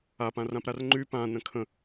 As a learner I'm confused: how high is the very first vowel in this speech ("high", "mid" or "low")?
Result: low